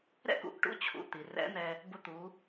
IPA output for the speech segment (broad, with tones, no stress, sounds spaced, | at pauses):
ɾ ɛ̰˥ k ṵ˩˧ ʔ ʈ ṵ˧˥ t͡ɕʰ ṵ˩˧ t̪ i˩ r ɛ̰˧˥ n̪ ɛ˧ | b ʊ˧ t̪ u˩˧